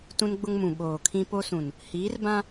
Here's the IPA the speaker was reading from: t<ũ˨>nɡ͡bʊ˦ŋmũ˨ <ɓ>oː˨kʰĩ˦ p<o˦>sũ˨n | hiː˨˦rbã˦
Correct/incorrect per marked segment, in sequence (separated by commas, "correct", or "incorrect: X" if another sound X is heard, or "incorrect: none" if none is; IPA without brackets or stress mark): incorrect: ũ˦, correct, correct